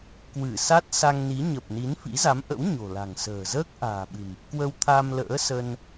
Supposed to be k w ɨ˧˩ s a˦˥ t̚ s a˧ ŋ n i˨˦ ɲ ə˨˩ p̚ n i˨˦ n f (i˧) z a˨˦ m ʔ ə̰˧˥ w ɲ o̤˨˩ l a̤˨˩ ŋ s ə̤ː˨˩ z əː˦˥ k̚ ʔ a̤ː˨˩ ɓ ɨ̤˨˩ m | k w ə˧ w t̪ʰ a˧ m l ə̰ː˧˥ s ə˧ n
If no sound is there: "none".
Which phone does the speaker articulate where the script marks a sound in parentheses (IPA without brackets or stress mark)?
ḭ˧˥